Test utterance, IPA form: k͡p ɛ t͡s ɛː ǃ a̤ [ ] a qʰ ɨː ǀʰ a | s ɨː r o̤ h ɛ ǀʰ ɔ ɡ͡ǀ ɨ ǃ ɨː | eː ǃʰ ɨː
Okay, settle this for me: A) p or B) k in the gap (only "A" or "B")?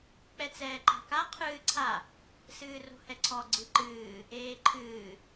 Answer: B